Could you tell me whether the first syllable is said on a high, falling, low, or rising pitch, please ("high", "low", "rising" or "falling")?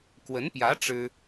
rising